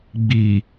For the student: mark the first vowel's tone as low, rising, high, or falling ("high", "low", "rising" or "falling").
low